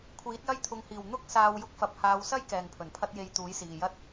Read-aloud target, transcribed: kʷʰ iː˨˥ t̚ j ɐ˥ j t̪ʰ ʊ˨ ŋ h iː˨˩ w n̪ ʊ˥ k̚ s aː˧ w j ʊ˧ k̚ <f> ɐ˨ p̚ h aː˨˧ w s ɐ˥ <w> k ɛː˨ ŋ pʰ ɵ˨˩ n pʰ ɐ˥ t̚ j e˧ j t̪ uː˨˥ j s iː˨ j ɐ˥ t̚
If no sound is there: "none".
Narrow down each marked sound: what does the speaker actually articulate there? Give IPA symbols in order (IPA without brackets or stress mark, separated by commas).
f, j